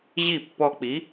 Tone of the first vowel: falling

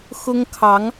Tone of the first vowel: high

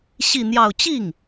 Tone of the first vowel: falling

